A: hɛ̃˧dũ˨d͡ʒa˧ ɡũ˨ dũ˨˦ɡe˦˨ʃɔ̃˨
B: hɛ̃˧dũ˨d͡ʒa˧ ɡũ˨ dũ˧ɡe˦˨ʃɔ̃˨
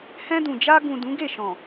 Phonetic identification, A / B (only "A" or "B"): A